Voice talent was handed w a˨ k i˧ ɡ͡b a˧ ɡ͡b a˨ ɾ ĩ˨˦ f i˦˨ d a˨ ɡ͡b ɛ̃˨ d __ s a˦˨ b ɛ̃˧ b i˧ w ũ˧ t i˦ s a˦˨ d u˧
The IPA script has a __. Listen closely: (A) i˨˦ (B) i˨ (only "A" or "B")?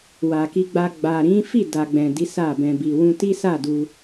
A